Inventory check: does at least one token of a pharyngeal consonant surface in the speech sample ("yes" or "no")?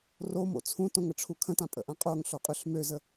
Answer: no